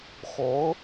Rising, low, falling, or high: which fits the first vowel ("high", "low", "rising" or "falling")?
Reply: rising